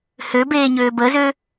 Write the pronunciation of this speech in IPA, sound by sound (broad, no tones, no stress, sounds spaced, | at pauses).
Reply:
h ø b eː ɲ øː b əː z ø